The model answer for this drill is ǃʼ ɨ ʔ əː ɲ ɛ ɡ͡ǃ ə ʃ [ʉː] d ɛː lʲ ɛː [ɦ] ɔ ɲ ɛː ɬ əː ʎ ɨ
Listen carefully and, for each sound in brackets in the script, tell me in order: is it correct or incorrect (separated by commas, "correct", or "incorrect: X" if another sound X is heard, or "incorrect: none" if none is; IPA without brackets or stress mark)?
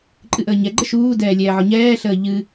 incorrect: uː, incorrect: ʕ